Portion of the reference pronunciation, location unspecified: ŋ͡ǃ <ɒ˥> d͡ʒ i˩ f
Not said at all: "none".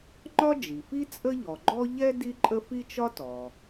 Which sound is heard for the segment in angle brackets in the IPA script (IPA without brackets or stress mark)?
ɒ˥